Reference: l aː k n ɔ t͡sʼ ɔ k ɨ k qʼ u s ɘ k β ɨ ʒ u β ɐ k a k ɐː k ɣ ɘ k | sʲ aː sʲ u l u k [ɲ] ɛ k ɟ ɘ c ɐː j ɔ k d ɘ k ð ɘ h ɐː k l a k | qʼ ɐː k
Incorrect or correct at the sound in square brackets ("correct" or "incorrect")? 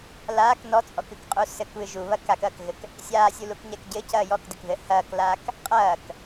correct